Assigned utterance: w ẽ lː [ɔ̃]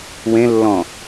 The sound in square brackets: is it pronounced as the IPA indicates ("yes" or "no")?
yes